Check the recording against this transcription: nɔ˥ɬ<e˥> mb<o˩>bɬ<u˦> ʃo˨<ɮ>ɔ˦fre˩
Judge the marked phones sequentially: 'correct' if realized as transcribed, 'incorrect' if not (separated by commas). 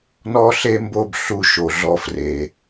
correct, incorrect, correct, correct